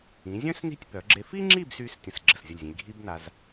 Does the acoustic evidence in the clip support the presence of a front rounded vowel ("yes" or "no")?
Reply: yes